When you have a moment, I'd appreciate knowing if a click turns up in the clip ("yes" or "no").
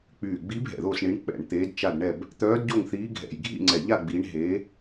yes